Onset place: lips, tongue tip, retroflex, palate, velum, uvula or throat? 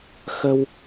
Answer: velum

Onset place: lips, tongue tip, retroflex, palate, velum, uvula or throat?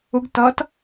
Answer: velum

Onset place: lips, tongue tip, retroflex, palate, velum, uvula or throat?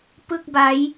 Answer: lips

